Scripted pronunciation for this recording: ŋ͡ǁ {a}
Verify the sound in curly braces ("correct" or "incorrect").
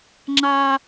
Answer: correct